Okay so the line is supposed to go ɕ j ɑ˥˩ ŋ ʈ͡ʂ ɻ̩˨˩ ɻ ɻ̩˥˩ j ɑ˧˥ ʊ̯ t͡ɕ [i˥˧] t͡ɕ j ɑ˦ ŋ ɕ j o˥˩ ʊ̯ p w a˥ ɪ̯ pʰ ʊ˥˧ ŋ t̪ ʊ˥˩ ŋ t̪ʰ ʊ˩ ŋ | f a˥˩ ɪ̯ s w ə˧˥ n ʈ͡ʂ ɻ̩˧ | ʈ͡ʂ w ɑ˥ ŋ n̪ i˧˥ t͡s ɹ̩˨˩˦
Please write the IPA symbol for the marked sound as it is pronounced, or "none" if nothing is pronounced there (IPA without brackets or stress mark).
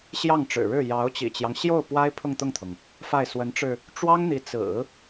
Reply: ḭ˨˩